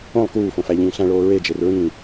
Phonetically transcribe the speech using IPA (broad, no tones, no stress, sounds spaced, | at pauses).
õ lˠ k uː f õ f æ ʎ ĩː ɬ æ̃ ɭ oː ɹ e d͡ʒ e r ɹ ĩː